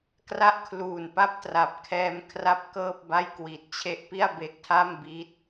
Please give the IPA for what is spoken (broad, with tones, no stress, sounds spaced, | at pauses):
k r a˦˥ ʔ kʰ l uː˨˩ n p a˦˥ p̚ t r a˨˩ p̚ kʰ ɛː˧ m kʰ r a˦˥ p̚ k ɤː˥˩ p̚ b a˥˩ j k w i˨˩ t̚ t͡ɕʰ e˦˥ ʔ p i˥˩ a̯ b e˥˩ k̚ tʰ a˥˩ m b i˥˩ t̚